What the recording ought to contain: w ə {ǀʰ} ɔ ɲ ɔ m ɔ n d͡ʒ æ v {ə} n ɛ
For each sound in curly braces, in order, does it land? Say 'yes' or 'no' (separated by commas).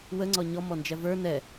no, no